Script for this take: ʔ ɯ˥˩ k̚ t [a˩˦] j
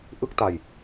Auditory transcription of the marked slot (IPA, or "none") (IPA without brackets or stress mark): a˧